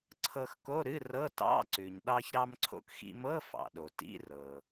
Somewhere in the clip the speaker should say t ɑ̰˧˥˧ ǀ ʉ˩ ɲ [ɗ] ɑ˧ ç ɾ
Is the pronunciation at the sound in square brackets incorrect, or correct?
correct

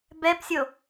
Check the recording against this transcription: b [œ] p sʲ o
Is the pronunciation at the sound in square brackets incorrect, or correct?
incorrect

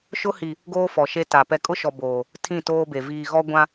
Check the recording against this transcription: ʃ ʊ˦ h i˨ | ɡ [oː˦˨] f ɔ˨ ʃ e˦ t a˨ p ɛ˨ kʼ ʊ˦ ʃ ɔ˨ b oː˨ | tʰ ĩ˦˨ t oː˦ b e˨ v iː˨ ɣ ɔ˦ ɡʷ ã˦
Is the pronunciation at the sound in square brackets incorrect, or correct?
incorrect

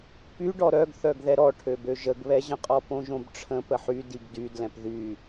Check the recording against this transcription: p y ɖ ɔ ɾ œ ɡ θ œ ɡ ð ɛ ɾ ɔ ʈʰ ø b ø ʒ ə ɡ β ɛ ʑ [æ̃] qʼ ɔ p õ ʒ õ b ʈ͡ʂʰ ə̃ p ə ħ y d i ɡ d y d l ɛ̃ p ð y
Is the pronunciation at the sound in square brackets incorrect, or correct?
incorrect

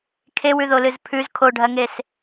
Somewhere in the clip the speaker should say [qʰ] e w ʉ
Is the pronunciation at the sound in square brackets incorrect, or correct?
incorrect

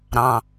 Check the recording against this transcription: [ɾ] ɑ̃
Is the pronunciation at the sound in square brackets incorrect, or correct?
correct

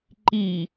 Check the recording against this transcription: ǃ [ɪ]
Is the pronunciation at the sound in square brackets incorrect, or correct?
incorrect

